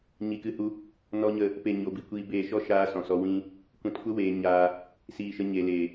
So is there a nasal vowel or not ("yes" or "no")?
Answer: yes